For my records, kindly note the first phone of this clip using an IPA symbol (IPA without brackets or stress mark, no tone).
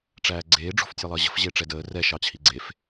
ʈ͡ʂ